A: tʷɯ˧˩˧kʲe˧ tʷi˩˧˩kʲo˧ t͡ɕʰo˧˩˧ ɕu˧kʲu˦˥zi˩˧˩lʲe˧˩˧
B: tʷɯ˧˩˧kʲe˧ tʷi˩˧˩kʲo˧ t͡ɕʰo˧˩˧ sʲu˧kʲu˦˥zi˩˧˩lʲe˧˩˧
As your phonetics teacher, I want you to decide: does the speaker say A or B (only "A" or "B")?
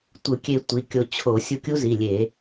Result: B